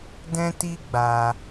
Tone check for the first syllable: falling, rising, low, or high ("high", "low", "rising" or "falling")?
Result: high